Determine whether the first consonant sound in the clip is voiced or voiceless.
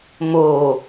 voiced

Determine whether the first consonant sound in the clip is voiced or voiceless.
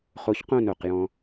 voiceless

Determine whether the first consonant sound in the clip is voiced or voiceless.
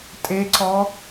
voiceless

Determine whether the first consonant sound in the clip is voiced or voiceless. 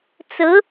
voiceless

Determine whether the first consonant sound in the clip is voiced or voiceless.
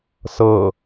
voiceless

